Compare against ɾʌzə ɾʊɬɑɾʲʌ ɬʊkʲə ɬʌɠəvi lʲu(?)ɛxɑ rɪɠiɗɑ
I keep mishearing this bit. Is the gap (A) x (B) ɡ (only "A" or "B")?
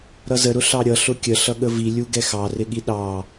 B